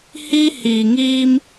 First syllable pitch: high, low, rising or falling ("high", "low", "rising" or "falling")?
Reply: high